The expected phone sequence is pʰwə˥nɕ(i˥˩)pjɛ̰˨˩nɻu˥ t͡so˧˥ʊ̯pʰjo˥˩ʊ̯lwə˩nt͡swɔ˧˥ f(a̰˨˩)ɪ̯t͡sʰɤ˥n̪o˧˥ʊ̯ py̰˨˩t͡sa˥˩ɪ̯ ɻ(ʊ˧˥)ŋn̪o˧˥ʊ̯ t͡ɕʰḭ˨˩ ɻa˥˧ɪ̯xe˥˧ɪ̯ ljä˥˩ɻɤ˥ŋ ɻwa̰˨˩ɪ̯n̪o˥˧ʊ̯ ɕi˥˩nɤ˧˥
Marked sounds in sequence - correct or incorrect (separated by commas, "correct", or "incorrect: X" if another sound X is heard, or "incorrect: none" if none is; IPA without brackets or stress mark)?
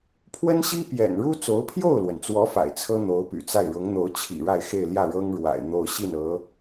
incorrect: i˥, correct, correct